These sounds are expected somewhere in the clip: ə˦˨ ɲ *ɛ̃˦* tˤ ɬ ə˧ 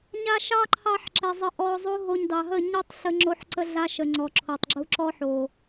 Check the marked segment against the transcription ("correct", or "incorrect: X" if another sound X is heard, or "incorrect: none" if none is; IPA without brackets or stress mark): incorrect: ɛ˦